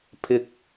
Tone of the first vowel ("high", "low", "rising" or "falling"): low